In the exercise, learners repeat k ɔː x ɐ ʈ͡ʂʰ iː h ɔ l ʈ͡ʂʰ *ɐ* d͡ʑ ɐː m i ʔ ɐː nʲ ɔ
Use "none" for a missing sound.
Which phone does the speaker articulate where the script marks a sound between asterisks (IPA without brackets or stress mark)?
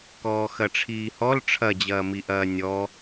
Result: ɐ